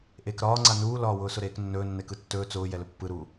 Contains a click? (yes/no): yes